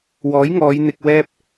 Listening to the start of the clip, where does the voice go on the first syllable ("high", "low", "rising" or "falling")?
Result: rising